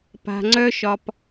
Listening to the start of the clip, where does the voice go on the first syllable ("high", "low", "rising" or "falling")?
low